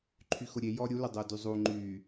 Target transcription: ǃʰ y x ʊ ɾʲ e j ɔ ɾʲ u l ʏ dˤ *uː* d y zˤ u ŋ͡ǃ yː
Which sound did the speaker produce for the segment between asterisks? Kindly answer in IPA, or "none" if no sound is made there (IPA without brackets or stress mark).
ʊː